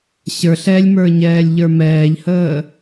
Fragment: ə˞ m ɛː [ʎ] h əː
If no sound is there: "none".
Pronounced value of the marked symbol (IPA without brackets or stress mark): ʎ